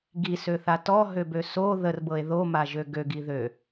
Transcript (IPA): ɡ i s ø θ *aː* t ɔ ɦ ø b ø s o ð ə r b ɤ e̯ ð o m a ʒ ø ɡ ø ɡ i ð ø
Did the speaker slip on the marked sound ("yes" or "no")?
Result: yes